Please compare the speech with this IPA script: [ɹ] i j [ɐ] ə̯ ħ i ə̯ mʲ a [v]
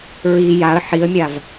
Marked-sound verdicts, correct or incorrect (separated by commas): correct, incorrect, correct